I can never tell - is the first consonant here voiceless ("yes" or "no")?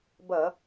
no